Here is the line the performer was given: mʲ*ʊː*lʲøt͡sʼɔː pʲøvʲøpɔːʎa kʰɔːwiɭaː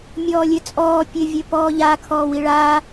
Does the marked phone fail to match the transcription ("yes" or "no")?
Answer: yes